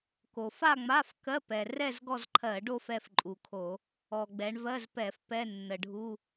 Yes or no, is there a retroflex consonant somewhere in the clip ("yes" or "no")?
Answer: yes